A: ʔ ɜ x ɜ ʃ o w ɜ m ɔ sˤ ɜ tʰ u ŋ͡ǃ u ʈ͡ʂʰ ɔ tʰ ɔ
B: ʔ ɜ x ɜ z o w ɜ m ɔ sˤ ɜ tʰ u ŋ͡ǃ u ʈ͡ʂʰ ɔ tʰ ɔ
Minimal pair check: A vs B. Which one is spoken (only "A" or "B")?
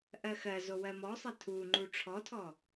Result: B